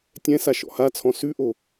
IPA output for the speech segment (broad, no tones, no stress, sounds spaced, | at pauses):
tʲ ɛ̃ s a ʃ ɔ̰ h a t͡sʰ ɔ̃ s ʉ ʔ o